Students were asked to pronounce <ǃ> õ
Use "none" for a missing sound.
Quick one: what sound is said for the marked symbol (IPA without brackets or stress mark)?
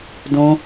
d